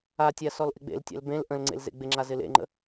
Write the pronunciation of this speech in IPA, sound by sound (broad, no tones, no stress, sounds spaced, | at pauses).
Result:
a tʲ a s ɔ l ʔ ɪ ɡ͡b ḛ l tʲ a̰ l b ẽ l ʔ ə̃ l ŋ͡ǀ ḛ l z ḛ ɡ͡b ɪ ŋ͡ǁ a z ɪ l ḛ ŋ͡ǃ ə̰